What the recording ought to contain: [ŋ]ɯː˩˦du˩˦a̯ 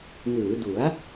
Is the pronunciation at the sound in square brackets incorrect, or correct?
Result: correct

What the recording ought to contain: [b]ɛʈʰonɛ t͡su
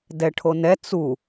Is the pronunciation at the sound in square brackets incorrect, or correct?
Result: incorrect: d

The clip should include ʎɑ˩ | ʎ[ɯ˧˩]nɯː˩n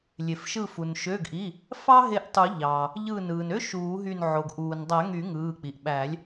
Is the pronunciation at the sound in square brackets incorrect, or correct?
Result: correct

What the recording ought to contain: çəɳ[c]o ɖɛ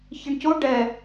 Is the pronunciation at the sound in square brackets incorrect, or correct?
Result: correct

